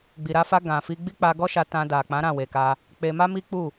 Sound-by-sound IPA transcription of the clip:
ɡ͡b i˨ ɾ a˧ f a˧ ɡ ã˨ f i˧ ɡ͡b i˦ k͡p a˧ ɡ ɔ˦ ʃ a˧ t ã˧ d a˨ k͡p ã˨˦ ɾ ã˦˨ w e˨ k a˧ | k͡p e˧ m a˦ m i˦ k͡p u˦˨

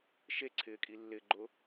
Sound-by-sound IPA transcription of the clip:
ʃ e ǀʰ ɪː kʼ i lː ɪ ɡ͡ǃ ʊ

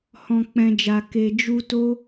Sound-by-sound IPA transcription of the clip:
h ɔ̃˨ k͡p ɛ̃˨ d͡ʒ a˨ k e˨ d͡ʒ u˧ t o˦

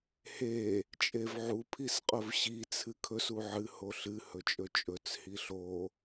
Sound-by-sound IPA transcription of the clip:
h e | t͡ʃʼ e v ʕ u pʰ i s qʼ ɵ v ɕ i t͡sʰ ɨ kʰ ɵ s u ʕ ɨ h o ɬ ɨ h ɵ t͡ʃʼ ɵ t͡ʃʼ ɵ t͡s h i ɬ o

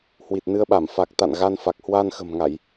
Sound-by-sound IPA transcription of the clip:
h w i˨˩ t̚ n ɨ˧ ə̯ ɓ a˧˩ m f a˨˩ k̚ t̪ a̰˧˨ n ɣ a˧ n f a˨˩ k̚ h w a˧ n x ə̤˨˩ m ŋ a˧˩˨ j

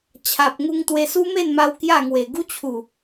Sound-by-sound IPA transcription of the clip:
t͡ɕʰ a˨ p̚ ŋ u˧ ŋ t̪ w e˧ s u˦ m e˥˧ n m a˧ w k j a˥˧ ŋ w e˨˩ ɡ u˦ t͡ɕʰ u˨˩

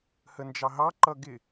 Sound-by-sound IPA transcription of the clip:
h ə n d͡ʒ ɑ ɦ ɑ ǃ ʌ ɡ ɪ

